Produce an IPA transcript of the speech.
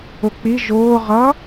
ʊ k͡p i ʒ ʊː ʁ ʌ

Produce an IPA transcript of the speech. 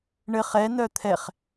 ɳ ɘ χ ɛ n œ t̪ʰ ɛ χ

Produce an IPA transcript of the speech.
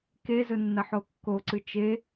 k e z ɵ nː ɐ ħ o kː o ǀ ɨ t͡ʃ e

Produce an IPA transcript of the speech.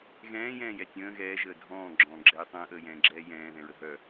ɣ ɛ̃ː j ɛ̃ː j ɛ tʲ ə̃ː ɣ ɛː ʒ əː dʱ ɔ̃ː ɡ͡ǁ ɔ̃ː ɡ͡ǁ ɛː tˤ ə̃ː ʔ əː j ɛ̃ː ɡ͡ǁ ɛː j ɛ̃ː ð ɛ̃ ɹ ə ɦ œ

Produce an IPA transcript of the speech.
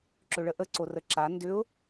ǁ ʏ ɭ ə ʔ ə ǀ o r ə ǁ a n d ʏ ʊ̯

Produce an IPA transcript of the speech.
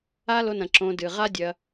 a˦ l o˧ n ɐ̃˨ ǁ õ˧ d ɨ˨ ʁ a˦ dʲ ɐ˧

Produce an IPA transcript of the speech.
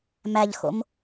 m æ ʎ x o̰ m

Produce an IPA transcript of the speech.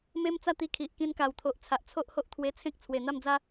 m e˦ m t͡s a˥˧ t̪ i˧ kʰ i˨ ʔ k ĩ˧ n k a˨˩ w t̪ʰ o˨ ʔ t͡sʰ a˨ ʔ t͡sʰ o˦ ʔ h o˦ ʔ t̪ʰ w e˧ t͡sʰ ẽ˦ k̚ t͡sʰ w e˨˩ n̪ a˥˧ m d͡z a˦

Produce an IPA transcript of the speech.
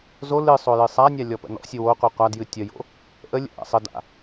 z o l ɨ sˤ o j ɨ sˤ a nʲ a lʲ ɔ p ə̰ n ɔ̰ sʲ ɨ w o qʷ ɨ qʷ a d j ɨ tʲ ə j o̰ | ʔ ə lʲ ə̰ ʔ a̰ sˤ ə d a̰

